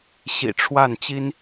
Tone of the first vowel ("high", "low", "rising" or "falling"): low